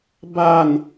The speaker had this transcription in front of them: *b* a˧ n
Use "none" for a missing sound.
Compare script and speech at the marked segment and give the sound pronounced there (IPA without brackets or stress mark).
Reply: b